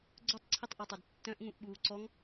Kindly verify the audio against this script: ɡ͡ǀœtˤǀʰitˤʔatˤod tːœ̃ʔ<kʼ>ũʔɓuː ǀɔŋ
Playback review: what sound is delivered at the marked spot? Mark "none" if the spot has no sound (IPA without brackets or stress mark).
ŋ